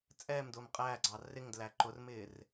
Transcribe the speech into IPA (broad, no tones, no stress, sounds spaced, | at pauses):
t͡sʼ ɛː m d ʊː m qʼ æ ɡ͡ǀ ɑ r ɪ ŋ d l æ ǃ ʊ r m ɪː r